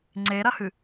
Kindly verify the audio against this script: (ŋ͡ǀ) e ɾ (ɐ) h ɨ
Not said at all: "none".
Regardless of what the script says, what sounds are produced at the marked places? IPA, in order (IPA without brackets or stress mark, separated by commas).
ŋ͡ǀ, ɐ